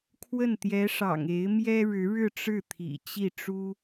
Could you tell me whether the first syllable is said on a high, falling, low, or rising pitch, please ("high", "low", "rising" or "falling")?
falling